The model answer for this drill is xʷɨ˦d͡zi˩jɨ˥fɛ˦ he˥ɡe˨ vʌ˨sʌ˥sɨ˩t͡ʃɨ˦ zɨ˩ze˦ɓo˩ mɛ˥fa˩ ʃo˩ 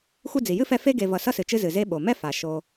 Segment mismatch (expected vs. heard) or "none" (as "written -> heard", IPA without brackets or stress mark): h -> f